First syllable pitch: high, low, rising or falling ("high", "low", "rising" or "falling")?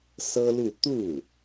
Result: high